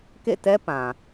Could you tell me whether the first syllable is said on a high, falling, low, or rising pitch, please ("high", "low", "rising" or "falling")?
falling